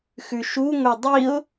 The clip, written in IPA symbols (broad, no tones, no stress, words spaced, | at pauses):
xʉʃu ŋʷedˤiʊ̯